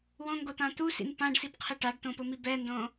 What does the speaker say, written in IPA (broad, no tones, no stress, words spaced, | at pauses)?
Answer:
wõ ŋɡot̪ãt̪usḭn pãɖsib qʰɪʈaɖt̪õ pʊmibɛndõ